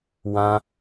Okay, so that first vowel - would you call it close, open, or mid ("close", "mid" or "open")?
open